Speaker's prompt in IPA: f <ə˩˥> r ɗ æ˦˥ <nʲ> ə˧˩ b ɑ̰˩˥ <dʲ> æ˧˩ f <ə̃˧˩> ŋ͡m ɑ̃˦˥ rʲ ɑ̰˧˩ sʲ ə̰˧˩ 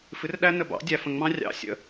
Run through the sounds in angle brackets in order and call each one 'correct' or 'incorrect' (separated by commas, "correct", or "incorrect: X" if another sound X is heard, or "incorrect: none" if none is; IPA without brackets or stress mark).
incorrect: ɨ˩˥, incorrect: n, correct, correct